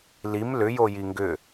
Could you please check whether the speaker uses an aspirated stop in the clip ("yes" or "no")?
no